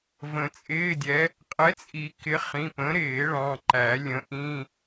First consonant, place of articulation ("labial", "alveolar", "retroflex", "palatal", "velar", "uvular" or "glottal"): labial